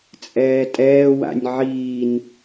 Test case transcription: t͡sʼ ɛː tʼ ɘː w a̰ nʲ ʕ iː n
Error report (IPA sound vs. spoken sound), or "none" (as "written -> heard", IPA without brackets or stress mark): ɘː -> ɛː